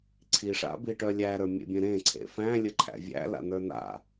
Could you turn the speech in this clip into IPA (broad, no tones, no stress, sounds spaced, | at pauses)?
ǀʰ i ʂ a̰ b i ʈ œ lʲ æ ɾ ə˞ mʲ ḛ bʲ ẽ ɾ ẽ ǀʰ ḛ f æ̃ lʲ ə ǃʰ æ̰ vʲ æ̰ l a̰ n ə˞ n a̰